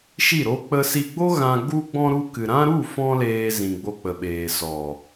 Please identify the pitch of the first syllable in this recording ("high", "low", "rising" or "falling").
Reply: falling